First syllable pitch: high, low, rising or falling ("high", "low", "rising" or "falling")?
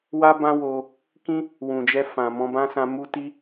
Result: high